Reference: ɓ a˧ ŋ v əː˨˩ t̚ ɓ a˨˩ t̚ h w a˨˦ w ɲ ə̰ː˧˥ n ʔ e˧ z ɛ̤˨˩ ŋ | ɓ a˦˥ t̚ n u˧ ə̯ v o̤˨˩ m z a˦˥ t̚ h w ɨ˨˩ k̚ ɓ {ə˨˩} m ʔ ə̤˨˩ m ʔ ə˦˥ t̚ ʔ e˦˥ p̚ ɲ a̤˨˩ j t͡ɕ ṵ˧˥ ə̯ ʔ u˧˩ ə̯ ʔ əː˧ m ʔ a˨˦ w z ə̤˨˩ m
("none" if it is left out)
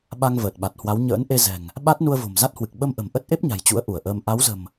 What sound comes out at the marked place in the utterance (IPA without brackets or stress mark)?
ə˧